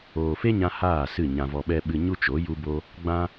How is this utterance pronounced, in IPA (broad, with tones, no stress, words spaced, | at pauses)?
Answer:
oː˨fe˦ɲã˧ haː˦˨ sɨ˦˨ɲã˧vɔ˧ɓɛ˦ ɓɨ˧ɲu˦t͡ʃo˨˦ ju˦bo˦ | ɡ͡bã˧